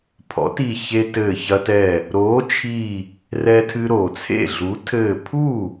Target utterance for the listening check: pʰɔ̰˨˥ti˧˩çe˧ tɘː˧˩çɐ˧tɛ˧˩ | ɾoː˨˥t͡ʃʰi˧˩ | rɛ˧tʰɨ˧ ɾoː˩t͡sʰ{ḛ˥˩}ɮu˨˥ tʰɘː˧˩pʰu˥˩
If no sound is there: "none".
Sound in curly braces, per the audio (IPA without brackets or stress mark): ḛ˥˩